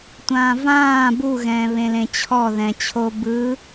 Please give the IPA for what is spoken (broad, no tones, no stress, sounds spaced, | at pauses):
tʷ ãː v ãː b u ɣ ɛ̃ː β ẽ l ẽ t͡ɕʰ ɔ ð ɛ̃ t͡ɕʰ o b ɯ